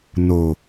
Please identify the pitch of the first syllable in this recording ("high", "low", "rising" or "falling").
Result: low